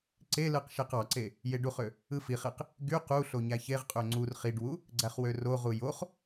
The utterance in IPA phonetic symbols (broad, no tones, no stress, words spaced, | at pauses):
ǀelɯq ʃeqɑǀe | jeɖuχø | ɯfiχeq | ɡy qu ɬoɲæçeʁqʼø ŋ͡ǀur χiɖwu | ɡ͡ǀæχwøroʁu joχ